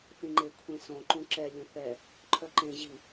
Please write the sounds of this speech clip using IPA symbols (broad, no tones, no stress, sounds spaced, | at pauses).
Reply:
θ ĩ ŋ͡ǃ e kʷʰ ẽ s õ ǃ ũ ǁ ɛ lʲ ũ θ ɛ | ǃʰ œ ǃ ẽ ʑ i